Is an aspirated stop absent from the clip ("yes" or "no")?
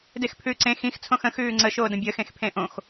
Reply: no